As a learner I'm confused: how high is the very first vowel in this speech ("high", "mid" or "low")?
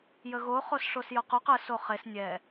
mid